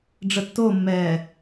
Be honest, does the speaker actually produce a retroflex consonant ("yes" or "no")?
yes